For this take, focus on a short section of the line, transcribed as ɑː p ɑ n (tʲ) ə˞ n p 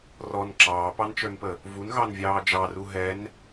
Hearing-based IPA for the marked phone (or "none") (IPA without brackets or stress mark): t͡ʃ